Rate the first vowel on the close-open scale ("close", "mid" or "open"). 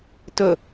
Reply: mid